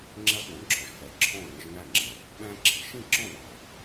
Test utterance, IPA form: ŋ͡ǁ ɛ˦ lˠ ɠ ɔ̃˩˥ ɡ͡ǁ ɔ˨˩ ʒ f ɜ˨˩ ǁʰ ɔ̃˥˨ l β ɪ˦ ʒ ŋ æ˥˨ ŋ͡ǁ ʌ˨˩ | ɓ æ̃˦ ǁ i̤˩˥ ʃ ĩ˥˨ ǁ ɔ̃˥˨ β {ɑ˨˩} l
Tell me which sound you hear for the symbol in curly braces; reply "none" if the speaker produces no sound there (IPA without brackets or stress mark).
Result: ɑ˨˩